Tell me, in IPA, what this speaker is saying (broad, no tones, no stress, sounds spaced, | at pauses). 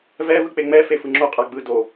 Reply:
v ɛ v ɯ k͡p e ŋ͡m ɛ f e f ɯ ŋ͡ǁ o qʼ a ɡ͡b ɯ d o